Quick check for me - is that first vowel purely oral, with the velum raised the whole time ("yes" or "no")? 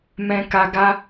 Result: no